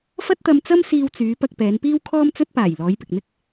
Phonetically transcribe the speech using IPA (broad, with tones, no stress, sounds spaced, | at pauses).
f ɐ˥ t̚ t̪ ɐ˧ m t͡s ɐ˥ m s iː˧ w t͡s yː˨˧ p ɐ˧ k̚ p ɛː˨˧ n p iː˥ w kʰ ɔː˥ m t͡s ɵ˥ t̚ p aː˨˩ j l ɔː˨˧ j p ɪ˨ k̚ n̪ ɪ˥ k̚